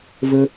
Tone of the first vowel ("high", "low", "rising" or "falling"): high